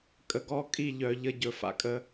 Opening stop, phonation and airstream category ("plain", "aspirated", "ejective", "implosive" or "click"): ejective